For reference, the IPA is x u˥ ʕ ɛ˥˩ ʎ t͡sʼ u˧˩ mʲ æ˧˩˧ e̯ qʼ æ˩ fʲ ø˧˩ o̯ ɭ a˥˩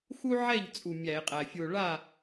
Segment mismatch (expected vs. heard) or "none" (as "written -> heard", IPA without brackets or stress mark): ø˧˩ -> u˧˩